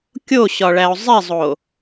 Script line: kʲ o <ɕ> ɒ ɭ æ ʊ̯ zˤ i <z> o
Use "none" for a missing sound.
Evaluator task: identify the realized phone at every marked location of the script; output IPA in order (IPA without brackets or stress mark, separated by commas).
ɕ, zˤ